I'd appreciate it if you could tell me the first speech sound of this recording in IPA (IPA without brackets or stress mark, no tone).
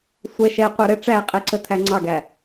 sʷ